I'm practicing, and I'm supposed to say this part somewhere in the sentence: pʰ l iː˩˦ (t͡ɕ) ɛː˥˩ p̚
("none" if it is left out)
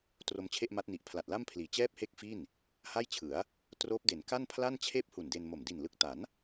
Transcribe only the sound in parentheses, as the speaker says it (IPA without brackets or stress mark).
t͡ɕ